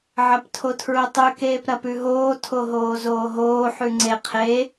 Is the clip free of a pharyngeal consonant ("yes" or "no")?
no